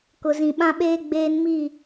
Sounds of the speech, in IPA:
kʊ˨zĩ˨ɓã˦ɓeː˦ ɡ͡beː˦nmi˦˨

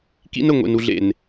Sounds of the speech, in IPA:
kḭ˦nə˨ ŋʷḛ˨nu˨ɮḛ˨n

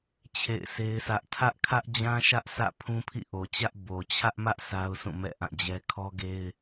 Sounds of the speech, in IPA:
t͡ɕʰḛ˦˨ɪ̯sʰe˦ɪ̯sä˦ʔ tʰä˦ʔkʰä˦ʔd͡ʑã˦ʃä˦ʔ sä̰˦˨pʰũ˦pʰḭ˦˨ʔo˨ t͡ɕä˦ʔ bo˨ t͡ɕʰä˦ʔmä˦ʔ sa˦ʊ̯sʰũ˦˨ mɛ̰˦˨ ʔã˦˨d͡ʑɛ˦ kʰɔ˦ɡe˦ɪ̯

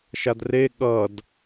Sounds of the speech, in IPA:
ʃadre ɠʌd

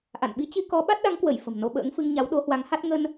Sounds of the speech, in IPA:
ʔa̰˧˨nɓi˨˦t͡ɕi˧ kɔ˨˦ɓa˦˥t̚ɗa˨˦ŋkwə˧˩j fə̤˨˩mno˧ɓə̰ː˧˥ŋfɨ˧ŋ ɲa˨˦wɗo˨˦hwa˨˦ŋha˦˥t̚ ŋə˧n

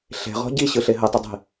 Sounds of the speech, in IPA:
ɬe̤ʁɔ̤ ɟiɕɯɬe ɦətˤɪdˤi̤

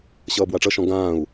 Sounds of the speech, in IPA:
ɕʌːbwaʈ͡ʂʌʃɔ̃ ɡãːu̯

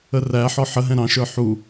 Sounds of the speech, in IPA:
əræħɔ ħəɦɛ̃ ɾɑ̃ʃə˞ ħu

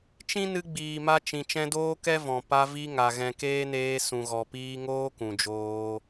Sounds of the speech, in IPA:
t͡ʃĩ˦ nɨ˧ɡ͡biː˨ma˧ t͡ʃĩ˨ t͡ʃɛ̃˧doː˦kɛ˦ vɔ̃˨ pa˧vi˧ŋa˨ ɣɛ̃˨keː˦neː˧ sũ˨ɣɔ˨piː˧ŋoː˦ kũ˨d͡ʒoː˧

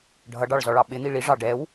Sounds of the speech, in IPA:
ɖʱʌɖɑɭzɔɭɑ ɓɪn̪i ɭiʐɑ ɖɛw

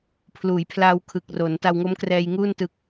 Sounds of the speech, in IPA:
pʰluː˩˦jpʰlaː˧w kʰɯ˨˩k̚ro˩˦n ta˧wŋo˦˥mkrɛː˧jŋuː˥˩n tɯ˦˥k̚

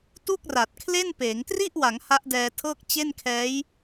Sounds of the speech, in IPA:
tu˥˩k̚ra˨˩t̚kʰle˥˩npeː˩˦ŋ tri˥˩ʔwa˩˦ŋ ha˦˥ʔdɛː˧tʰɤː˥˩k̚ t͡ɕe˥˩nkʰɛː˦˥j

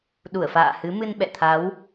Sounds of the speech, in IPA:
ɗu˧˩ə̯fa̰ː˧˨hɨ˨˦ mɨ˧nɓɛ̰˧˨t̪ʰa˨˦w

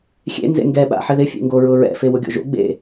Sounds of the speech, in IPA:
xʲḛ nzḛŋɡɛɓa̰ ħɪðɪfʲḛŋɡo ɹʊɹɛ̰fe wʊɡʲo̰ʒo̰ ɡ͡bḛ

